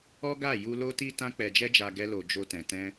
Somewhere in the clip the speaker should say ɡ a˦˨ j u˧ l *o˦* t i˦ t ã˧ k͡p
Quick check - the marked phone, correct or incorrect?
correct